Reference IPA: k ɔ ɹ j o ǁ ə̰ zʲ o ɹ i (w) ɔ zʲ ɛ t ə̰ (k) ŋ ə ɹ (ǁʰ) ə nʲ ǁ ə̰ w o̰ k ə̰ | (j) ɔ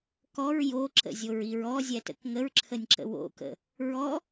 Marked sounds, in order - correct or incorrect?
incorrect: ɹ, correct, correct, incorrect: ɹ

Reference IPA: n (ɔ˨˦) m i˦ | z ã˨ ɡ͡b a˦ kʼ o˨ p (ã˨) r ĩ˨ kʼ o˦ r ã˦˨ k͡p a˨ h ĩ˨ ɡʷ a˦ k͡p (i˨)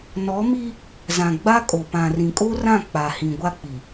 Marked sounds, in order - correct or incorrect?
correct, correct, correct

